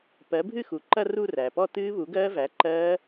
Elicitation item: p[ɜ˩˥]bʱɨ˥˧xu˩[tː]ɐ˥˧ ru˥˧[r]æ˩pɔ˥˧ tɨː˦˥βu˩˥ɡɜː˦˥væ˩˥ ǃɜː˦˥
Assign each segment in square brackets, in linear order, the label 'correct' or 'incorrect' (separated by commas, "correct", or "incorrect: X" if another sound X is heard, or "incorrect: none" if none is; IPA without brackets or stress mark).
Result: correct, incorrect: ǃ, correct